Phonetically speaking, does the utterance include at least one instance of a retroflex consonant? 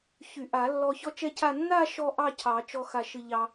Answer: no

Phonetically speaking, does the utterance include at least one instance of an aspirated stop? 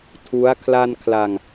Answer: yes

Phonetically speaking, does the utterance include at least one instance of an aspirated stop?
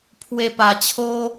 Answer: yes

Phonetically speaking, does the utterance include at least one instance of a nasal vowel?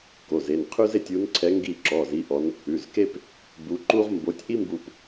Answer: no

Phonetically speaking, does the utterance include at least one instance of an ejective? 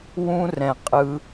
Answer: yes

